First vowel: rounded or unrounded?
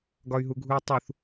rounded